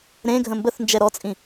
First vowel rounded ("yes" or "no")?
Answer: no